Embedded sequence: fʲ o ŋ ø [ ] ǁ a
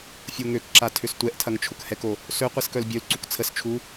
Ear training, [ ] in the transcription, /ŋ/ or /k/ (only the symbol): k